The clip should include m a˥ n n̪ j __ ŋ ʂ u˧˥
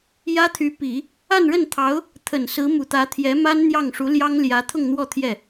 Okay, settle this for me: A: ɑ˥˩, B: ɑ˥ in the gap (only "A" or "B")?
A